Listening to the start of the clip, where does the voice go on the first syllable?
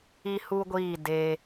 high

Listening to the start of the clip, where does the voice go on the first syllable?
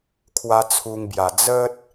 high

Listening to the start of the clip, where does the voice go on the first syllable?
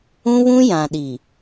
high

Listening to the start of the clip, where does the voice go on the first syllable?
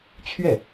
falling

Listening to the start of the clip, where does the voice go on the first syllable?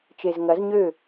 low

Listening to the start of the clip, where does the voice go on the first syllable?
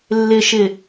low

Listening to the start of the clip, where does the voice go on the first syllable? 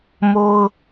high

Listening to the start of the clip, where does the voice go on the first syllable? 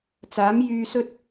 rising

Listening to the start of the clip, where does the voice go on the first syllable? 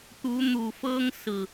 rising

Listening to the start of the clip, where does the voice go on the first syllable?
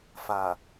low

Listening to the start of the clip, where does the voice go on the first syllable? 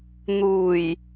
low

